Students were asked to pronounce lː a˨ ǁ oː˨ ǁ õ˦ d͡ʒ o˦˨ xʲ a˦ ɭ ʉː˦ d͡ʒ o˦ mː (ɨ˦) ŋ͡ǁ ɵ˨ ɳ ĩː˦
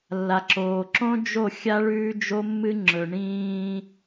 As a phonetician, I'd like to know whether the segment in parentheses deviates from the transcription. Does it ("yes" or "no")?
no